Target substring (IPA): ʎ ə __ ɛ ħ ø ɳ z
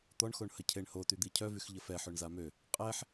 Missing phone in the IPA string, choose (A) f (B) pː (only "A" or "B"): A